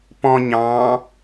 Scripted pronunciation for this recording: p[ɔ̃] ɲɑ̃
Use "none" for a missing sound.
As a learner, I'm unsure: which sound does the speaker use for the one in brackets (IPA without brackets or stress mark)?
ɔ̃